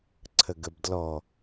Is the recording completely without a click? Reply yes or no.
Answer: no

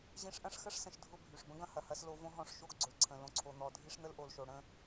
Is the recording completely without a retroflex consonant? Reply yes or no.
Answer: no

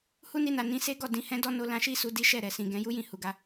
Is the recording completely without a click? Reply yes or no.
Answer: yes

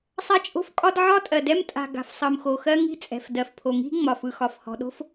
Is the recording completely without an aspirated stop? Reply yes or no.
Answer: no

